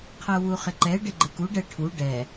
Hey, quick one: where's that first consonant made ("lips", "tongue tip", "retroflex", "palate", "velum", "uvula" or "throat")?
uvula